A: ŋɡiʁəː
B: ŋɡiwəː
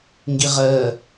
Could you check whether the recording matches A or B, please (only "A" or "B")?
A